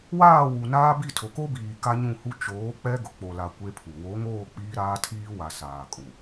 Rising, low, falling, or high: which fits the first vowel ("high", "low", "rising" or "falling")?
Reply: falling